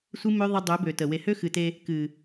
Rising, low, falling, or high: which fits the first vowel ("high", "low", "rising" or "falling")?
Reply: high